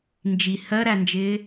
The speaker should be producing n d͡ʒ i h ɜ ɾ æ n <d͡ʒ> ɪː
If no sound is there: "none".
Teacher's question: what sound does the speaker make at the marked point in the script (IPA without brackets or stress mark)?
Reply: d͡ʒ